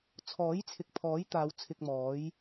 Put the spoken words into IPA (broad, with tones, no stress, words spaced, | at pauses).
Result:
t͡sʰɔː˨˥jt͡sʰɪ˨k̚ pʰɔː˨˥jt̪aː˨˧w t͡sʰɪ˧k̚mɔː˨˥j